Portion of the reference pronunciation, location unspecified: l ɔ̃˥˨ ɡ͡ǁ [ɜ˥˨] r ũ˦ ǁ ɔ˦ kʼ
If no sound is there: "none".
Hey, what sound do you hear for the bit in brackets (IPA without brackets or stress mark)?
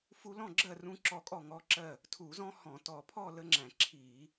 ɜ˥˨